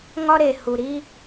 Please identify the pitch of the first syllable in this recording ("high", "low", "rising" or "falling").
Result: high